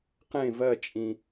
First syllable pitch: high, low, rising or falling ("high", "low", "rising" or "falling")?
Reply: falling